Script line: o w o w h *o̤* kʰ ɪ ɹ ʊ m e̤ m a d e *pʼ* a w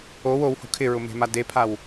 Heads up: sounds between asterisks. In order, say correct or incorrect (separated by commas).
correct, incorrect